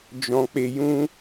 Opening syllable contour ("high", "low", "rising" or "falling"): high